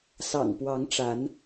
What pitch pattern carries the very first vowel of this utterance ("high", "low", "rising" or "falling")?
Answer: low